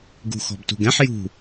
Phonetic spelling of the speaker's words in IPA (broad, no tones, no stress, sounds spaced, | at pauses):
ɡ ṳ x ɔ̤ b t ṳ ɡ ɛ̃ ħ j ṳ